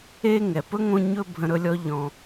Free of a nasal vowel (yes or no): no